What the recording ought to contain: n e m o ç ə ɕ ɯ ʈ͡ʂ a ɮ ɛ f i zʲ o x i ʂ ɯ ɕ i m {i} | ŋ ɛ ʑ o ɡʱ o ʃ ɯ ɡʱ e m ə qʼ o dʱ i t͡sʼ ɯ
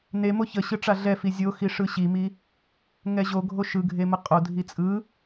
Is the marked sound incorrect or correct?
correct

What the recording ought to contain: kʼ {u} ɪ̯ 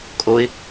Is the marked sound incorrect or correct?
incorrect: o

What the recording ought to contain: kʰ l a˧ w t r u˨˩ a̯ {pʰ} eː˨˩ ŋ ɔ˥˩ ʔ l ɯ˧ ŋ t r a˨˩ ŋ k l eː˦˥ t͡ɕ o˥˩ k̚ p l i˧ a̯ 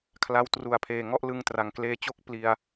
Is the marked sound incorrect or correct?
correct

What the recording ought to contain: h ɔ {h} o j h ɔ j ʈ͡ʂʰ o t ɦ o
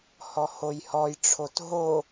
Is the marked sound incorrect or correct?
correct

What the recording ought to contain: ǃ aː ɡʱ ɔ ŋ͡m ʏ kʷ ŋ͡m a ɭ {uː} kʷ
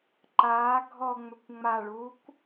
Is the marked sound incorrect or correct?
correct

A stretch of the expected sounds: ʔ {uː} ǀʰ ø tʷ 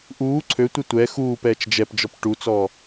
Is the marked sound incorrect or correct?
correct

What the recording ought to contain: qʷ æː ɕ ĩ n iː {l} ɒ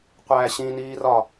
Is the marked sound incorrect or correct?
incorrect: r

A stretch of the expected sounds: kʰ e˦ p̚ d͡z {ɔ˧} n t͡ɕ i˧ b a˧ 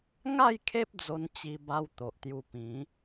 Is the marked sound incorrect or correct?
incorrect: o˧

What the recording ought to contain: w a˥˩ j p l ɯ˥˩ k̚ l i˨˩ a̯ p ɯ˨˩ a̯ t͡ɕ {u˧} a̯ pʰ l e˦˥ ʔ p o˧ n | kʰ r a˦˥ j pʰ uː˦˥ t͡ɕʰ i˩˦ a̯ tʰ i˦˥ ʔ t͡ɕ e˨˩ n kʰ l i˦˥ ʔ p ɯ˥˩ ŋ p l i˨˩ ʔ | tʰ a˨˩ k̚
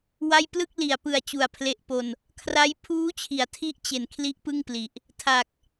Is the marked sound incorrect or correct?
incorrect: u˨˩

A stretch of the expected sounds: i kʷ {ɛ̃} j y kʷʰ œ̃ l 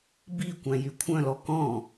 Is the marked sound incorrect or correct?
incorrect: æ̃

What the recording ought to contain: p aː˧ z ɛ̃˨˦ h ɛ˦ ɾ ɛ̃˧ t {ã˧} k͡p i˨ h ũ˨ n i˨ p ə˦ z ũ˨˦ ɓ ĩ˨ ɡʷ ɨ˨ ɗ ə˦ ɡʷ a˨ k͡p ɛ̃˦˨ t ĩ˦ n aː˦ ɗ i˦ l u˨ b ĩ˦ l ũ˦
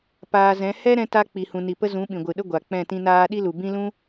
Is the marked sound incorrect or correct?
incorrect: a˧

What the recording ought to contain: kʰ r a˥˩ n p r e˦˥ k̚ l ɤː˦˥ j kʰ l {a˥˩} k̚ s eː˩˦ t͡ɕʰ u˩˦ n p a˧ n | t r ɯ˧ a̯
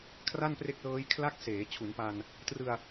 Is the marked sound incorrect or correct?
correct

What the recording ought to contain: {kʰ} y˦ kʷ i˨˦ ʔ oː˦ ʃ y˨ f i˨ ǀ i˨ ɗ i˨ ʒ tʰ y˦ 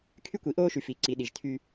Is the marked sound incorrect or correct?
correct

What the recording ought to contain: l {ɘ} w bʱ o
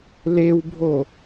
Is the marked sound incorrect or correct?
incorrect: e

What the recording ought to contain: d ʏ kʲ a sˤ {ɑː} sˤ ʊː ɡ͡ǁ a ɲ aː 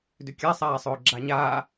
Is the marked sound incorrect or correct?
incorrect: aː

